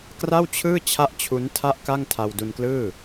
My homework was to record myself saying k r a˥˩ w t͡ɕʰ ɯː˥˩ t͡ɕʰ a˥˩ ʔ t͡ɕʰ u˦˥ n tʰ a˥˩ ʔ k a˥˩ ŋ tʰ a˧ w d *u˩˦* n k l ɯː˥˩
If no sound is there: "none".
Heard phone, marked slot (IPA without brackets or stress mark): u˧